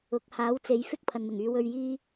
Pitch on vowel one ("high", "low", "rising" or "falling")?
rising